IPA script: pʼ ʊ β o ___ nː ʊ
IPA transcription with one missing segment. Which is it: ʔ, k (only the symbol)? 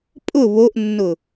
ʔ